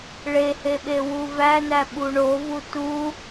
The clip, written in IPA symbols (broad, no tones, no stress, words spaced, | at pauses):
ɭeheɓe wuvænæ ɓuɳo vutu